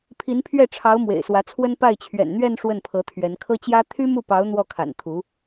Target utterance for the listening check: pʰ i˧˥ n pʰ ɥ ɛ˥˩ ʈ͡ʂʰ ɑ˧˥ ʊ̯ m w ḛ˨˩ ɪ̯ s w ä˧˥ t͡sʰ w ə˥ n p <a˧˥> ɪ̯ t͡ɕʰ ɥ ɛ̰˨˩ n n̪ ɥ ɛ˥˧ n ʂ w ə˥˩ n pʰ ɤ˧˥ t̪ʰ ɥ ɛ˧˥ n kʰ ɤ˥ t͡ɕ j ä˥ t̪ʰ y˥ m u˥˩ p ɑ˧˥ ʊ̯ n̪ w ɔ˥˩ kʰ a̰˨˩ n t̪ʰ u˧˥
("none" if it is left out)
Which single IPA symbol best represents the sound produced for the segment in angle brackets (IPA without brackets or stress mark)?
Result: a˥˩